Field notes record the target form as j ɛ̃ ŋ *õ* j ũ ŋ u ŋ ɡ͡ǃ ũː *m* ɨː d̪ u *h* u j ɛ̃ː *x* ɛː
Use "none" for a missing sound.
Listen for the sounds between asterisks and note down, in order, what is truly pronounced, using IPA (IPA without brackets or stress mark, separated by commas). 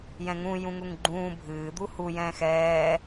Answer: ũ, bʱ, h, x